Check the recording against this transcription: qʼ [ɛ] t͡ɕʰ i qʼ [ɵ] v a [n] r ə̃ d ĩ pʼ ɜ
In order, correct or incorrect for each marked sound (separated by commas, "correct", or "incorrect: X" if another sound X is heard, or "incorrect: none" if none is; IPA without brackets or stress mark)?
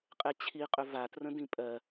correct, correct, incorrect: t